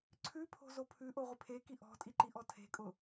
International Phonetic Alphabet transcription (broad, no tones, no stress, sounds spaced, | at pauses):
ǀʰ ʉ pʰ o̤ z o pʰ ʉ ʔ o ʁʷ ɪ pʰ e k i ʔ ɔ̤ tʼ i ǃ i ʔ ɔ tʰ e̤ kʼ ʊ